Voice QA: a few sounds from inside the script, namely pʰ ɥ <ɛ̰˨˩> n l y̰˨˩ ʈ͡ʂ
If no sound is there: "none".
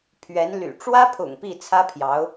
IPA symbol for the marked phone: ɛ˧˥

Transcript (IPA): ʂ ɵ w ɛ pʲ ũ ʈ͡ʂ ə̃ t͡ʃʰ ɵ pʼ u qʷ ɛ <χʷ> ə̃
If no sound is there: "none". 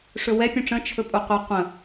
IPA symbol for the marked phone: qʷ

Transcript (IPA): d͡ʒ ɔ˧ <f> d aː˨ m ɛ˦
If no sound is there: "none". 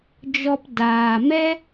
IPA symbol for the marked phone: p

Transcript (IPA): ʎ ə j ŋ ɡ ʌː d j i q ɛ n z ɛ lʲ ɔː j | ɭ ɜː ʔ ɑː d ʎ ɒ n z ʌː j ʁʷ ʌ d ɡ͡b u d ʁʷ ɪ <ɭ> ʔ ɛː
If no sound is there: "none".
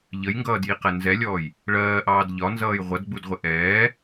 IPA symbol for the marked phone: none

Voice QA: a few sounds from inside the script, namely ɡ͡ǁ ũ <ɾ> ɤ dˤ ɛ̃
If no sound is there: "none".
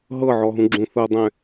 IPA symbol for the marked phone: θ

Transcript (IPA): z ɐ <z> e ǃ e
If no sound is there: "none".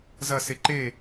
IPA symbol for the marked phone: s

